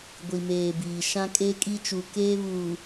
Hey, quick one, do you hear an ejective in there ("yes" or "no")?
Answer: yes